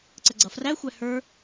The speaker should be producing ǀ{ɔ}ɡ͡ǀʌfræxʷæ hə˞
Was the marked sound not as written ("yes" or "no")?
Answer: yes